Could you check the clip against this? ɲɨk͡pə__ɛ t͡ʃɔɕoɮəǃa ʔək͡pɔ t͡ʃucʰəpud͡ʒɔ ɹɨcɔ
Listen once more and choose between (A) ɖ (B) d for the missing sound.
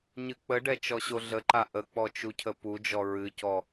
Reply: A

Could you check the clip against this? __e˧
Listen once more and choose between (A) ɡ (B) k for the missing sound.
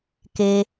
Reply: B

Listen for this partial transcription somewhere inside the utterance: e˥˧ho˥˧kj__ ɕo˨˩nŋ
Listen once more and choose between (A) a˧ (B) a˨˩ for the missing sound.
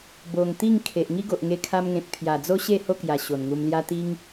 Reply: B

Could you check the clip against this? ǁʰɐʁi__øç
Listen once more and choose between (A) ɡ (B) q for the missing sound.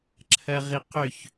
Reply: B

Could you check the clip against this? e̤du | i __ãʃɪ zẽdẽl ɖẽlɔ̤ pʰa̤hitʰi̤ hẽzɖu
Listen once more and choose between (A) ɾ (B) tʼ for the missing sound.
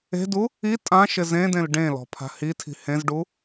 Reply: B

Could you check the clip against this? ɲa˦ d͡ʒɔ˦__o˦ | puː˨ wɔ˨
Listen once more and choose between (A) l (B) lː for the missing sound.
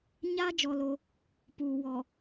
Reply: A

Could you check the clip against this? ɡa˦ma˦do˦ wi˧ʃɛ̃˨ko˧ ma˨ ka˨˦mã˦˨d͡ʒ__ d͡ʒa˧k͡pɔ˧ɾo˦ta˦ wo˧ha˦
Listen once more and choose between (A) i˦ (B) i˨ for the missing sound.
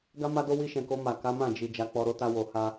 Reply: B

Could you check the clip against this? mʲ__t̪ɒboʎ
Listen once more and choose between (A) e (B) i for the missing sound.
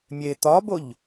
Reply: A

